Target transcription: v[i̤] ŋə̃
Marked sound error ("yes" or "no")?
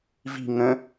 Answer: no